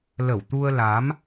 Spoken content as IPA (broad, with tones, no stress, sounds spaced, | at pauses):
l ə˧˩ w t̪ u˧ ə̯ l a˨˦ m